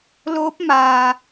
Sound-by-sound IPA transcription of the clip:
l oː˧˥ p̚ m aː˩

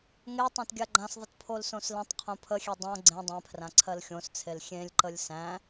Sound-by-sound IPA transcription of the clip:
ŋ e tˤ ã t ɡʲ a ɡ͡ǃ ã s ðˤ ə t pʰ o l s õ s l ə̃ tˤ qʰ õ pʰ ə xʲ e dˤ õ ɡ͡ǀ ẽ dˤ ẽ pʰ r ã ǀʰ ɜ l xʲ õ s t͡sʰ e l xʲ ẽ lʲ ǃ ə lʲ s æ̃

